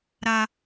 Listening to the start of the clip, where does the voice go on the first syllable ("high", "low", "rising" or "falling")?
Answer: high